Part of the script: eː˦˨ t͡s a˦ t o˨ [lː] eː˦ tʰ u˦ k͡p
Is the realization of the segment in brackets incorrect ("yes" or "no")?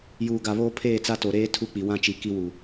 yes